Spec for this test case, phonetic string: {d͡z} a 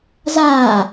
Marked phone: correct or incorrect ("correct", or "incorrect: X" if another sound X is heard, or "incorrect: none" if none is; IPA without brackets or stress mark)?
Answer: incorrect: z